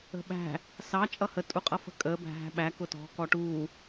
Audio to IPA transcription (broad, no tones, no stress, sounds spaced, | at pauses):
ə̤ ɓ æ̤ | s ɑ t͡ʃʼ ʌ h ə tʼ u qʼ ʌ f ə̤ kʼ əː b æ̤ ɦ æ̤ ɓ æ k ʊ t ɔ̤ k ɔ ʈ uː